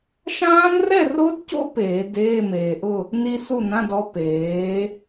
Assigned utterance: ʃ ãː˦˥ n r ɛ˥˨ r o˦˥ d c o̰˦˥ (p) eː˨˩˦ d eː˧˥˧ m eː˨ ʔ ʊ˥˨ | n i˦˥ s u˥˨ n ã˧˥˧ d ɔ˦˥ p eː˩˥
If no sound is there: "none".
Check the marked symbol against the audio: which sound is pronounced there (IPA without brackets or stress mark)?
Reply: p